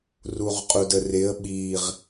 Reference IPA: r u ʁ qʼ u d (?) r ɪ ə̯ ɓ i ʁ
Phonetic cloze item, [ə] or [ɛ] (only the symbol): ə